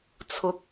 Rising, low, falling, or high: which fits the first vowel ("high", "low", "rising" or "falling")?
rising